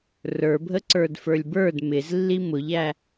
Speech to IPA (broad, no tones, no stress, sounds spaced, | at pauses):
r ə˞ bʱ ə ǀ ə˞ d f ə˞ lʲ b ə˞ d m ɪ z lː i m ʊ ʎ æ